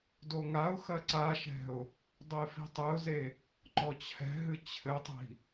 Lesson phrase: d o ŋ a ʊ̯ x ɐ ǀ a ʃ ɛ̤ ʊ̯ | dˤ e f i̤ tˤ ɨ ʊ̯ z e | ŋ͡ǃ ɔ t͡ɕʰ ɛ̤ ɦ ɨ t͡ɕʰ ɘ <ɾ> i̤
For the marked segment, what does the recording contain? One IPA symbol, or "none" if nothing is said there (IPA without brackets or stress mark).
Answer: tˤ